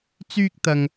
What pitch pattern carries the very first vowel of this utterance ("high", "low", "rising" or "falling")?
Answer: high